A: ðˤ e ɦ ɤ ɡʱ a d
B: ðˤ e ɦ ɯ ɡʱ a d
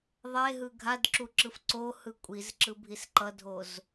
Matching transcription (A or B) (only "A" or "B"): B